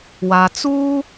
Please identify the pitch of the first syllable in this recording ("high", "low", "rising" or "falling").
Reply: low